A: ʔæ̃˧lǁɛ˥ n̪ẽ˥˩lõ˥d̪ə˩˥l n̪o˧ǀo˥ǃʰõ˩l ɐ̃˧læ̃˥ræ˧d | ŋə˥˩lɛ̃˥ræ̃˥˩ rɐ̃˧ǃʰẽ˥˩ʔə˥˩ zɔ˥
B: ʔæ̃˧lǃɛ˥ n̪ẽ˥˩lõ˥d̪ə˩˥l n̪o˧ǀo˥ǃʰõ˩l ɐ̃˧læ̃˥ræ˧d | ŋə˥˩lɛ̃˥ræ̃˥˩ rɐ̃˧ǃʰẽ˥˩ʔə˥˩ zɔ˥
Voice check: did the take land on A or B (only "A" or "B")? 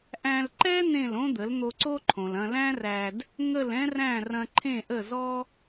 B